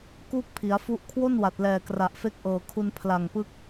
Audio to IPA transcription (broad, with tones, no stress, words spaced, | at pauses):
kuː˥˩k̚pʰi˩˦a̯fu˦˥ʔ kʰwo˥˩nwa˨˩t̚lɛː˨˩ kra˨˩ʔfe˦˥k̚ ʔɤː˨˩kʰu˧n pʰla˨˩ŋpɯ˦˥k̚